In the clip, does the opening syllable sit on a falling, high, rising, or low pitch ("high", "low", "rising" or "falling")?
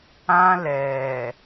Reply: high